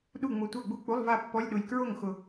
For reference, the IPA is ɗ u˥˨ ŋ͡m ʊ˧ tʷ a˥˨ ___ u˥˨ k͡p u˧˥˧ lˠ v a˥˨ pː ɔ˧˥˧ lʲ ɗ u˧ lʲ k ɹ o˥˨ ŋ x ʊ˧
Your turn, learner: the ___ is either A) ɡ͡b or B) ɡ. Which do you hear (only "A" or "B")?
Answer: A